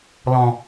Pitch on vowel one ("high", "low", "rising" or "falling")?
low